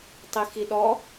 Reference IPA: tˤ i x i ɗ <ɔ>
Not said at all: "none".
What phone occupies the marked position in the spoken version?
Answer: ɔ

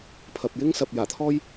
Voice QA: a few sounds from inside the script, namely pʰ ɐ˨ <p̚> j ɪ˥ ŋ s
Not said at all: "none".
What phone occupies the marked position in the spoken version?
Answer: p̚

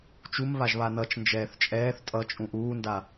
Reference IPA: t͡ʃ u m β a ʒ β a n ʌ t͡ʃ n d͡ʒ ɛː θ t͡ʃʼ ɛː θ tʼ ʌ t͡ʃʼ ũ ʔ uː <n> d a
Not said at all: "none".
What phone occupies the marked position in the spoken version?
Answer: n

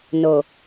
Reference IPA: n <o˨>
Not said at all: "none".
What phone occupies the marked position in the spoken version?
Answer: o˨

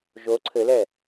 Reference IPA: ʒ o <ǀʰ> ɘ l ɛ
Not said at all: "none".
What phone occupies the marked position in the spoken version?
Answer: ǀʰ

